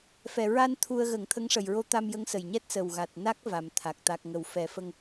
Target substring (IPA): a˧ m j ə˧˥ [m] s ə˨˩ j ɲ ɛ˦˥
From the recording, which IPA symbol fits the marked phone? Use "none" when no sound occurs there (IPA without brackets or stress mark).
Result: ŋ